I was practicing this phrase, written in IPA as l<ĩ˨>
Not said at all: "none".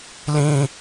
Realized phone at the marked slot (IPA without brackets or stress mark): ĩ˦